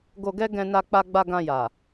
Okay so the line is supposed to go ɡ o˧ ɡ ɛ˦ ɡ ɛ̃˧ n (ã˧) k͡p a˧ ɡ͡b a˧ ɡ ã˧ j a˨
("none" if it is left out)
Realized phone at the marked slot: a˧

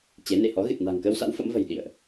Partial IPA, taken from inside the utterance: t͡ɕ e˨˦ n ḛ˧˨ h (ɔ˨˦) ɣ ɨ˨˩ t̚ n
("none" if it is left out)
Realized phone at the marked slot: ɔ˨˦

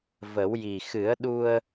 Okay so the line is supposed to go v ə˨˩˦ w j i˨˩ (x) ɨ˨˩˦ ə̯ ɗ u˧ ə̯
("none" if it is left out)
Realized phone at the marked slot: x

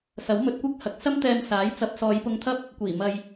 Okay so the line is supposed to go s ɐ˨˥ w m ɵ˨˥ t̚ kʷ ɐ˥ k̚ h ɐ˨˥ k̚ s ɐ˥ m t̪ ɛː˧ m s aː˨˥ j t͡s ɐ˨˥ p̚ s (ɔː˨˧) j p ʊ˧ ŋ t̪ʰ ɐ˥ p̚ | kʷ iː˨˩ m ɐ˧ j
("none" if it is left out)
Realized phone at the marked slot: ɔː˨˧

